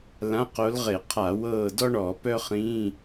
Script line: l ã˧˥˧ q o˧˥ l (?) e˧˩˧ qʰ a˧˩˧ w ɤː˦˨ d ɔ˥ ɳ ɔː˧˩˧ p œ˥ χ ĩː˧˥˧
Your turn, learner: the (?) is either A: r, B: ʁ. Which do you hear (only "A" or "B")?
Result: B